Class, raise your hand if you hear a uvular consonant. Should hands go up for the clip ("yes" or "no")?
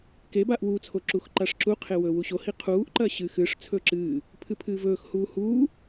yes